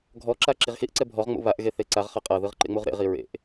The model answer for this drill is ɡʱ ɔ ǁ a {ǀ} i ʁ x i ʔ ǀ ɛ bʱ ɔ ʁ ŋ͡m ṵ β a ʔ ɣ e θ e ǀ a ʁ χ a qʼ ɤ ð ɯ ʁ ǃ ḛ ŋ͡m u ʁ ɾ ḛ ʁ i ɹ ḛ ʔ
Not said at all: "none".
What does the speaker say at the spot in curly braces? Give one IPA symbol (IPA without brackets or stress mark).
ǁ